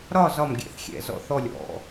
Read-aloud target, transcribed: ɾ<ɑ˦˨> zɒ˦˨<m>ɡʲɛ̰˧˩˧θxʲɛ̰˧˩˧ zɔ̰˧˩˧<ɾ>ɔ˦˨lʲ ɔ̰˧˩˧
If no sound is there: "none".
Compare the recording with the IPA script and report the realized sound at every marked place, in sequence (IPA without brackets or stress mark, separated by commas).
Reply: ɒ˦˨, m, θ